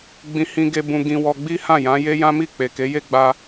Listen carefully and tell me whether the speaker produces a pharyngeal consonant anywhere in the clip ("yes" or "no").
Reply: no